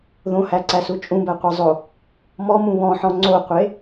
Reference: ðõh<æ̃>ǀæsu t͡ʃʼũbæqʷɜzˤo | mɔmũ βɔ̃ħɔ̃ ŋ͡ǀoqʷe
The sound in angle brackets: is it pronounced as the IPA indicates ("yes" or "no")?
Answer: no